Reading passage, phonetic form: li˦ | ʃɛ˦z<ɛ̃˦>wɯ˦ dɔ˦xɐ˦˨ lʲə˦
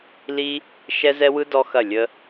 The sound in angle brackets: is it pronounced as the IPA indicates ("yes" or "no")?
no